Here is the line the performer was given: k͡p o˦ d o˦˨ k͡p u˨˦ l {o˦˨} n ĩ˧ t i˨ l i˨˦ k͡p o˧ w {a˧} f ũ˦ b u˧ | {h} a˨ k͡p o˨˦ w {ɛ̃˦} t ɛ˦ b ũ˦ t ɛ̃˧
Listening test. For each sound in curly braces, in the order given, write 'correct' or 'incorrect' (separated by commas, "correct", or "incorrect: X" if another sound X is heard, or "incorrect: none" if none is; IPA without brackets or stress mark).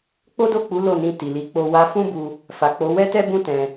correct, correct, incorrect: f, incorrect: ɛ˦